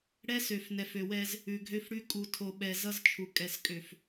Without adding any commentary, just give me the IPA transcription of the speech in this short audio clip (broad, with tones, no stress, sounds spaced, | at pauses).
ɽ ɛ˦ s ø˨ f n ɛ˨ f ø˨ w ɛ˦ z | ʉ˨ ɡʱ ø˦ f ɽ ʉ˦ kʼ u˨ tʰ o˨ ɓ ɛ˨ z ʌ˦ z t͡ʃʰ u˨ kʼ ɛ˨ s kʼ ø˨ f